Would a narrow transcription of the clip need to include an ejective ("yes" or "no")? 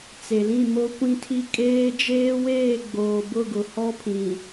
yes